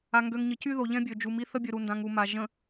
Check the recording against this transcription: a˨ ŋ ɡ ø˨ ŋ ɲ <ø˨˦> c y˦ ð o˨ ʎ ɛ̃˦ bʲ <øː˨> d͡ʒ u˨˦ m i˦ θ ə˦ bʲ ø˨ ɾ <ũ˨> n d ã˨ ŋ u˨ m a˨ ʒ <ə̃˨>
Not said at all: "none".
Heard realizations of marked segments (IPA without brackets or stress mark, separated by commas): ə˨˦, ø˨, u˨, ə̃˨